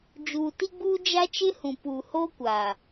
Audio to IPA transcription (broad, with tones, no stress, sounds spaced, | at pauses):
d͡ʒ uː˨ t i˦ ɡ͡b uː˦ d͡ʒ a˦ t͡ʃ ɪ˦ h ũ˨ p uː˨ h oː˦ kʷ aː˨